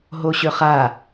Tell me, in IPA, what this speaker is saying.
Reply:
ɦoɕøχa

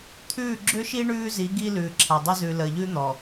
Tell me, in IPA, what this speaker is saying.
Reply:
t̪ʰʉː˦˨ɡ͡ǁʏ˦ʃi˦ ɳʉː˦zi˨˦ ɡiː˦lʉː˨ ǁʰa˨dˤʏ˦ zʉː˨ləː˨ʎʉː˦n̪ɔ˨

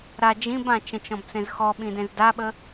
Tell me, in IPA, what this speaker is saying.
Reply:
ɾa d͡ʒĩbã t͡ʃə̃t͡ʃɔ̃bt͡sẽz xɔɓĩdẽz daɓə

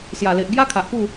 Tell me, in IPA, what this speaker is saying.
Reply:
sja˨˩le˨ʔ ɡja˦kʰa˨ʔpu˥˧

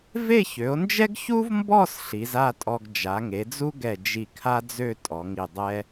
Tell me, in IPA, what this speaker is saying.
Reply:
ve˥˧çø˩˧o̯nd͡ʒɛ˥ɡ çu˥vmbɔ˥˧s ɬi˩˧za˥˧tʼɔ˧ɡ d͡ʒa˩˧ŋe˩˧d͡zu˥ɡɛ˧˩ d͡ʒi˧˩kʰa˥d͡zø˥˧ tʼɔ˩˧ŋi˧˩dˤɛ˥

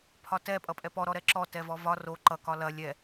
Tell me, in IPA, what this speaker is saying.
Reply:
pʰɒtɛ pʼʌpʼɛpɔ ɾɔɾɛǁɔ tɛvɔvɒ ro ǃʌ kɒlɐ lʲɛ

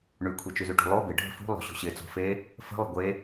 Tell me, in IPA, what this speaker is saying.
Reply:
ɳʉkʷʰi t͡ʃʉzʉʈṳlˠo bɪ ɖʱə̤fṳlˠo̤ ɕo̤ɕɪ t͡so̤fe | fə̤lˠə̤ ɡʷe

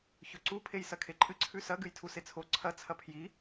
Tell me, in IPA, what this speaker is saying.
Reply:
çɵǀu pʰejsɐkʰeǃʼɨ ǀʰʉsɐ ɡɨjtʰuset͡sʰo ǀʰɐ t͡sʰɐpʰji

